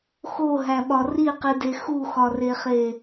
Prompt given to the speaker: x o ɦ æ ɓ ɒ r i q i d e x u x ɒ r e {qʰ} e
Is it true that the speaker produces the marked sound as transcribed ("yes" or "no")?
no